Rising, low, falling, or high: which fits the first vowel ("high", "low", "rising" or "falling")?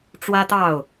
high